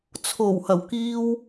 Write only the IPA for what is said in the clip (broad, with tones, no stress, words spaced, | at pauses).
t͡sʰo˨˩w hɐ˨˩wkiː˧w